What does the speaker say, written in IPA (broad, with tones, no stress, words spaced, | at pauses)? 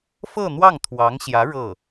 fɤ˥˧n̪wɑ˥˩ŋt̪ʰwɑ˧˥ŋɕjä˧˥ ɻɤ˥˩